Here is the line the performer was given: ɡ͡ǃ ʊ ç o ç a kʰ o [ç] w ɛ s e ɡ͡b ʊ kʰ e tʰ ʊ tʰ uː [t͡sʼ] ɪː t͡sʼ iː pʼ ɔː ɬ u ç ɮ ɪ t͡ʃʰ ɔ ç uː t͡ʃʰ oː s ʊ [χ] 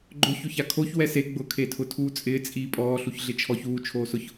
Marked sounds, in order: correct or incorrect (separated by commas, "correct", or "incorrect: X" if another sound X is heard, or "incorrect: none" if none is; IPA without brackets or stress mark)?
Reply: correct, correct, incorrect: ç